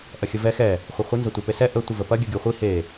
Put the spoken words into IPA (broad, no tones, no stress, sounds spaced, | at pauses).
ʔ ɐ xʲ ə v ɛ x ɛ | χʷ ɐ χʷ ə n z ɐ tʷ e p e s ɛ ʔ ə tʷ ə v ə p ɐ ɡʲ ə ɡʲ o χʷ i h e